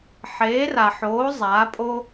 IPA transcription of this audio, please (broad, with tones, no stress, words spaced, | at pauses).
ħeː˨˥ra˨ħoː˨˥ zˤaː˨˥pʼo˥